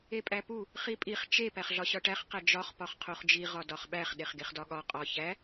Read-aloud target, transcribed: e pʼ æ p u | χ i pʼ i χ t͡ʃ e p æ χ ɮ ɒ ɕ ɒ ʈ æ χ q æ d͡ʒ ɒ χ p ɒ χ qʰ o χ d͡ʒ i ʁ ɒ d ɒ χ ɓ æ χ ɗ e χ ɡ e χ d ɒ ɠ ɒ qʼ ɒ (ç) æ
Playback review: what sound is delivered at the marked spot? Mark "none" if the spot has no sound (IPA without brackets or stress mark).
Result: ç